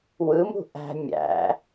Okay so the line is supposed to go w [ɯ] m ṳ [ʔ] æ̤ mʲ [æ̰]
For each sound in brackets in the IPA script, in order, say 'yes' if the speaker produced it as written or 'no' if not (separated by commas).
yes, yes, yes